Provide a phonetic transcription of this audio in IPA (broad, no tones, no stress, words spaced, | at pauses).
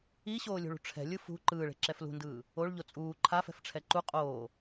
iɕoːlʲṳɭṳ ʈ͡ʂʰɛ̤lʲɯ fṳ ǃɯːɭe̤ǁɛf lṳndɯː | oɭʎo t͡sʼuː ǃʰafɛ̤fʈ͡ʂʰɛ ǃu qʼoː